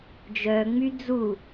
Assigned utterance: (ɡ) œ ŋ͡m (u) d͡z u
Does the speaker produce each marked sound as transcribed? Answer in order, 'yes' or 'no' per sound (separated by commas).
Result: no, no